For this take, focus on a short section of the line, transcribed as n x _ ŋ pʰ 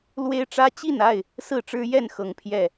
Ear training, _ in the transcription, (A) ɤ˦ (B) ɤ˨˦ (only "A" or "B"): B